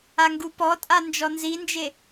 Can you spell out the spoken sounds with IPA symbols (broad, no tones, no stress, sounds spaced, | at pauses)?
a ŋ ɡ u p ɔ tʼ a n d͡ʒ ɔ n z i n d͡ʒ e